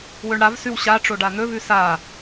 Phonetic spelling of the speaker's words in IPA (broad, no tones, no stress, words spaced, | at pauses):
wɵɳɽavsʉw ɕaʈ͡ʂo ɖan̪ɵvʉ sa